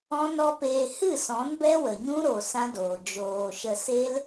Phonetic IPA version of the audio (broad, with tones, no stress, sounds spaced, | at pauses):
ɔ̃˦ n ɔ˦ p eː˧ h ɨ˦˨ s ɔ̃˨˦ n b ɛ˦ w ə˨ ɲ ũ˦ ɾ o˨ s ã˦ d oː˨ d͡ʒ oː˨ ʃ ə˧ s e˦ l